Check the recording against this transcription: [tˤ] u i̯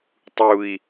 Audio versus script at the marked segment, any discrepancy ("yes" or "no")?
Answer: no